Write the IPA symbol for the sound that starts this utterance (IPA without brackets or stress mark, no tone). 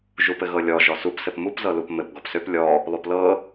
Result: ʒ